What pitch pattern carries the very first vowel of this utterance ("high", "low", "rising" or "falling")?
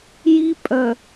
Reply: high